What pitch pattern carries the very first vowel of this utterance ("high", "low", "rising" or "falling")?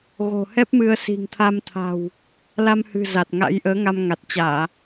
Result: low